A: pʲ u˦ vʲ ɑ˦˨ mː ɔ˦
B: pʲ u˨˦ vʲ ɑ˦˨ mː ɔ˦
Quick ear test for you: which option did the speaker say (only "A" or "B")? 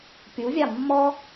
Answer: B